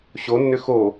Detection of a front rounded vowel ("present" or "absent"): present